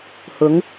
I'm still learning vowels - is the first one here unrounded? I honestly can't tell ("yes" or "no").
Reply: no